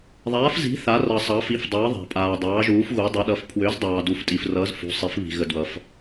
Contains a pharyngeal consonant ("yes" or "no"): no